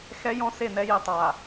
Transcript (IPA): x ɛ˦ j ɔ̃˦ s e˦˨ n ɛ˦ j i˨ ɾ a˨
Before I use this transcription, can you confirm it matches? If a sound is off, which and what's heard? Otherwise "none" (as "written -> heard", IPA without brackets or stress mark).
ɾ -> tˤ